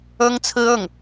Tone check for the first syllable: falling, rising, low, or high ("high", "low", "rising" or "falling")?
high